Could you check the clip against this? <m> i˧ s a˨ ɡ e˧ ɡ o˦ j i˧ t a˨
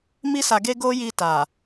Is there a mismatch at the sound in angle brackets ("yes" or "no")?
no